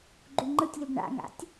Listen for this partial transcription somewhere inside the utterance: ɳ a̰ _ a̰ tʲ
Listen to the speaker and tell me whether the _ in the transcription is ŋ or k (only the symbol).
ŋ